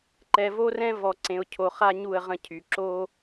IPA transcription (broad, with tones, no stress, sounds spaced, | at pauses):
ǃ ɛ˨ v o˦ r ɛ̃˦ v ɔ˨ ǀ ẽ˨ ʊ̯ cʰ o˨ χ a˦ ɲ u˦˨ ə̯ ʁ ə̃˦ cʰ y˨ ǁ o˦